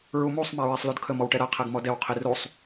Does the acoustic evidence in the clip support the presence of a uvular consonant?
yes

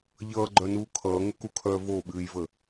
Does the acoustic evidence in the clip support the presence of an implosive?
yes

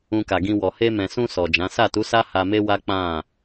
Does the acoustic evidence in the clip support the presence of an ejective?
no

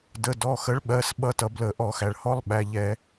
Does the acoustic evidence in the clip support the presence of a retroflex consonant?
yes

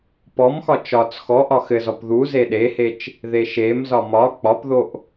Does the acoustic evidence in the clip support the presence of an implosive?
yes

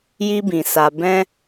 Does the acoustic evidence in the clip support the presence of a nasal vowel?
yes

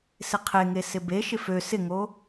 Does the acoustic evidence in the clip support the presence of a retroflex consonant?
no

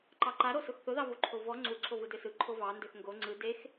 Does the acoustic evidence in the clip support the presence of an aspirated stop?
yes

